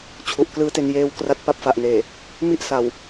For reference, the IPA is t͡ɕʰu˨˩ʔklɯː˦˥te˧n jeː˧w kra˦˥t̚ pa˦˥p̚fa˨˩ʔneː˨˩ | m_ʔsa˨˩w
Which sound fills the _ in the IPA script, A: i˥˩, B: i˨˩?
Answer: A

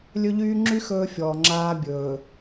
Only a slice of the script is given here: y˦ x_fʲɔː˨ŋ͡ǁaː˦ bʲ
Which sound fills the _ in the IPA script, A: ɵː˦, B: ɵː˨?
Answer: A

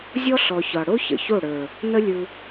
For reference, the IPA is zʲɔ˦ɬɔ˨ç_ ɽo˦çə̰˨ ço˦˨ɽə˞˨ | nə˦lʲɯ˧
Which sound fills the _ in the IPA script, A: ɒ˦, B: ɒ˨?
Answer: B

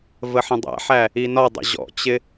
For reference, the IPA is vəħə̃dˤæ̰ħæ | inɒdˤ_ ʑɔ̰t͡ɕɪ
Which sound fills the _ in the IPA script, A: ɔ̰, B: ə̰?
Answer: B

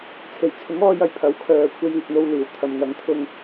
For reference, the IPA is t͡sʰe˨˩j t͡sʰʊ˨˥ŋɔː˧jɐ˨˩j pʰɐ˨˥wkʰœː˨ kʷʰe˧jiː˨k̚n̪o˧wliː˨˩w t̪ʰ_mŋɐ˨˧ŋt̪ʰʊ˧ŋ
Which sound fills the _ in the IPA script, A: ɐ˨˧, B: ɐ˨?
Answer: B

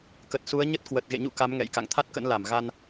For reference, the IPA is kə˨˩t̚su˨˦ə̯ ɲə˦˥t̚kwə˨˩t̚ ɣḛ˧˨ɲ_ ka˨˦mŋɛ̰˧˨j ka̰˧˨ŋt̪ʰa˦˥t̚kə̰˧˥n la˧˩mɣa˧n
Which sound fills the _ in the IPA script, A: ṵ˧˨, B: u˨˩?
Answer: A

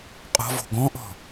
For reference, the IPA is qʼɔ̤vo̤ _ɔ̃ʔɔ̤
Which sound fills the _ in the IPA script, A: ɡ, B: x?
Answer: A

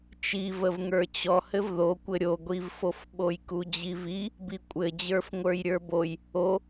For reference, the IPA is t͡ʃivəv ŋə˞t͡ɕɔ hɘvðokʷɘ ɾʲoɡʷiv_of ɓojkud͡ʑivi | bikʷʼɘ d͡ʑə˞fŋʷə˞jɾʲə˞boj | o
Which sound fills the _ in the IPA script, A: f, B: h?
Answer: A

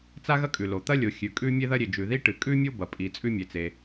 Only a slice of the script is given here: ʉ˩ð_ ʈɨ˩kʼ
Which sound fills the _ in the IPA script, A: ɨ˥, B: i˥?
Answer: B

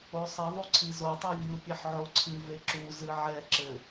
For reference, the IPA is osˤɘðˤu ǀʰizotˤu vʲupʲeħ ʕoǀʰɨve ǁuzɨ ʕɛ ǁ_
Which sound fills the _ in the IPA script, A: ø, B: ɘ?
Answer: B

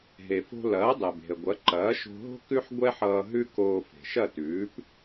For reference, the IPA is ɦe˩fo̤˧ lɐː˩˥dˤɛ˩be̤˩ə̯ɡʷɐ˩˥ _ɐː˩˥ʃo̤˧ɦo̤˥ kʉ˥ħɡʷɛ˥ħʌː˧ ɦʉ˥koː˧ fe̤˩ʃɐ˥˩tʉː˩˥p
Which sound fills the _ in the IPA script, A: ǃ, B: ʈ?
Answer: A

